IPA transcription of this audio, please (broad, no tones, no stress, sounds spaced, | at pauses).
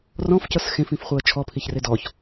r ɔ̃ f c ɤ s x ẽ f ĩ f χʷ e ə̯ t͡ʃʰ ɔ pʰ i ç r e d ɔ ç